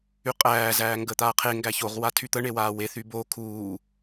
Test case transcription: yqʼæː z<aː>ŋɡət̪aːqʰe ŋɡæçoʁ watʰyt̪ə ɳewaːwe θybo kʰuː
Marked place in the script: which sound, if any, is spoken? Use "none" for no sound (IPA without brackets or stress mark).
æː